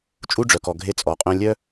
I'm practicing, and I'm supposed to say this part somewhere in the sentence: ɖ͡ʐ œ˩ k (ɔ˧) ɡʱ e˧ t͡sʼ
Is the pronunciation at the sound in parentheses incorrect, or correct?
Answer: incorrect: ɔ˩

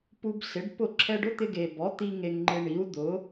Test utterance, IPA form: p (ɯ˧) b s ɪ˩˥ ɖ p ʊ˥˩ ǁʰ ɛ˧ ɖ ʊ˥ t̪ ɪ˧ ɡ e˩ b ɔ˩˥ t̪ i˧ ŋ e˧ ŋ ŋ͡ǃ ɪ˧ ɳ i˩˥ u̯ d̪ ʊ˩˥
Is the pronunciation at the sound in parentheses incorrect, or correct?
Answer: incorrect: u˧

